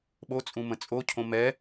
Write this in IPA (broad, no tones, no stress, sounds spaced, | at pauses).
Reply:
ɓ o t͡sʼ ũ m ə̃ t͡sʼ o cʰ õ m ɛ